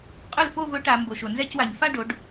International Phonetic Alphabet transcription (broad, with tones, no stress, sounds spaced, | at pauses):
qʼ ɵ˥˩ l f o˥˧ v ɵ˧˥ ʈ a˩˧ m b o˩ ʃ o˩ n z ɛ˥˧ c w a˩ ɲ f a˥˧ ɖ o˩˧ ɖ